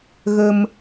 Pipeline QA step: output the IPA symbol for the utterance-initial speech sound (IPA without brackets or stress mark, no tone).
ɣ